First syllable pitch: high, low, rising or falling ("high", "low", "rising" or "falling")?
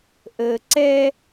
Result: low